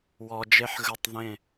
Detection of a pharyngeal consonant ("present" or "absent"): present